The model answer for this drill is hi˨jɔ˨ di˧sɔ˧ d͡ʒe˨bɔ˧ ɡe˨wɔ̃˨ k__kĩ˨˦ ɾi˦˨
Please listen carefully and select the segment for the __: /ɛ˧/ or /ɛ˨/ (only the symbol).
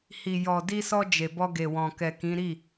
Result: ɛ˨